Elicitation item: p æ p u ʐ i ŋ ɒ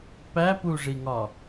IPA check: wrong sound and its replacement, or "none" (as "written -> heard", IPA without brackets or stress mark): none